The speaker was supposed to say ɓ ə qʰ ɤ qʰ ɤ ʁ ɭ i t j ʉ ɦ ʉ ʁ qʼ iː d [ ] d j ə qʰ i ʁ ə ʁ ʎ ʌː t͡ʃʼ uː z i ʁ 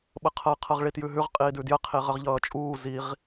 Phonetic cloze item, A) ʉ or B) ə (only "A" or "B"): A